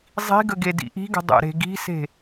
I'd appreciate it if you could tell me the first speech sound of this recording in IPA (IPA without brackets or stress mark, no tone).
zˤ